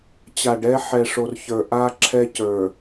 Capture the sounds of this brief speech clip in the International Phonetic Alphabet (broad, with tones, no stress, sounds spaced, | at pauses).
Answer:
t͡ɕ a˨ ɖ ɛ˦ ħ ɛ˨ ʂ o˨ r ç ə˞˨ ʔ a˦ ǁʰ ɛ˦ c ə˞˨